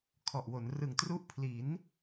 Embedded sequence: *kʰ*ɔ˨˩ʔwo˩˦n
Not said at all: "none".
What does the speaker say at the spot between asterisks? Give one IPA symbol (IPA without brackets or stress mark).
kʰ